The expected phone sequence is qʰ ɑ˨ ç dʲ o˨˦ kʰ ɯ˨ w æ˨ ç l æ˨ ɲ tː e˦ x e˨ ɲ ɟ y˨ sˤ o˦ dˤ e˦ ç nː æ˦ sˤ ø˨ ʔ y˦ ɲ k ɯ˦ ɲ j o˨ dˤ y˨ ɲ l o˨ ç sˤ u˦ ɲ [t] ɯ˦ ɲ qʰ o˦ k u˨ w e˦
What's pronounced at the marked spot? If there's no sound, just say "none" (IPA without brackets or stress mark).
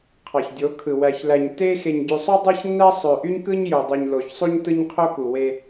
t